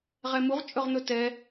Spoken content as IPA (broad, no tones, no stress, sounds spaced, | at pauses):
ʁ ɛ m u ʁ t͡ʃʼ ɵ ʁ n̪ ɵ t ɛ